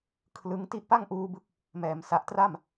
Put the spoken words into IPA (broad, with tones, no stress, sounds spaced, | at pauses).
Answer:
kʰ l ɯ˦˥ ŋ t i˦˥ ʔ p a˥˩ ŋ ʔ uː˧ b ɯ˦˥ k̚ | m ɛː˩˦ m s a˨˩ ʔ t r a˥˩ m